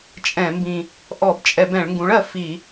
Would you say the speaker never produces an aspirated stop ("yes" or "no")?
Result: yes